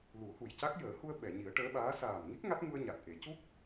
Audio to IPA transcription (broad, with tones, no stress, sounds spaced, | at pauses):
l u˨˩˦ h u˨˩ j c a˦˥ k̚ j əː˨˩˦ h u˧ ə̯ ɓ ɛ˨˩˨ ɲ i˨˩˦ ə̯ ʈ əː˧˥ ɓ aː˧˥ s aː˨˩ m ŋ i˦˥ k̚ ŋ a˦˥ t̚ ŋ u˧ ə̯ ɲ a˨˩ t̚ ʔ e˨˩˦ c u˦˥ k̚